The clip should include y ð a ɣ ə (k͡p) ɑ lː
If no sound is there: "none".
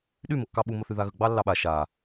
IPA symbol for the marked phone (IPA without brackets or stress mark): ɡ͡b